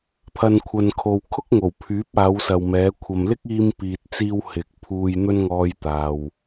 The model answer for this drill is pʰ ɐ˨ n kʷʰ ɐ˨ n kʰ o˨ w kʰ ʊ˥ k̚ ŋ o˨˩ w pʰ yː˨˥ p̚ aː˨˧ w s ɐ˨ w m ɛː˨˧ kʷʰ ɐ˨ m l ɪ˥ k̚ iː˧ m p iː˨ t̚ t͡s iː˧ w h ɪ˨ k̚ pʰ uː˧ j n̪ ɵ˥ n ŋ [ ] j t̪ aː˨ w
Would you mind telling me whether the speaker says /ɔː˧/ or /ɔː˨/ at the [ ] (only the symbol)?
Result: ɔː˧